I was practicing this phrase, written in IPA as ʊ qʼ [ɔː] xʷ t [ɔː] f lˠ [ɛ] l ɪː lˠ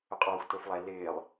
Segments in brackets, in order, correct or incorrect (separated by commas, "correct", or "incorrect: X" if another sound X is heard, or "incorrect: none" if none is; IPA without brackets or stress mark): correct, incorrect: ʊː, correct